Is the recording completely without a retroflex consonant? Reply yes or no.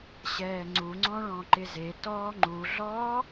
no